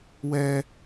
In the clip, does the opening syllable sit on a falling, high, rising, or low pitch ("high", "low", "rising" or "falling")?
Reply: high